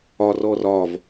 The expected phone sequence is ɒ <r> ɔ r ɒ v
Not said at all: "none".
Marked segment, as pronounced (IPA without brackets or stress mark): r